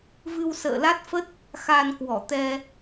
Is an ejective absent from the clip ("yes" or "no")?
yes